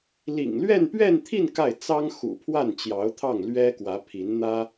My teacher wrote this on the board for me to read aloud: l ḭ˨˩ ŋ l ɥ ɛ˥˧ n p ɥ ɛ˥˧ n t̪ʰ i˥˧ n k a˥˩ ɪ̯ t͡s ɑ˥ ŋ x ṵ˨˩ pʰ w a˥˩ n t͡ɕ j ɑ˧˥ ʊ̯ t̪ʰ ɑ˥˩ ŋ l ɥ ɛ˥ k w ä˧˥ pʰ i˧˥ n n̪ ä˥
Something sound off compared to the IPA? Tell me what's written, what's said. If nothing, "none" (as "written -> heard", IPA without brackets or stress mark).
none